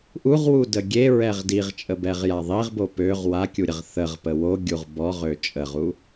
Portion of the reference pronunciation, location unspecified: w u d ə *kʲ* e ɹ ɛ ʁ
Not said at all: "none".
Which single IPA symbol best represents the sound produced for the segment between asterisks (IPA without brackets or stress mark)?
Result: ɡʲ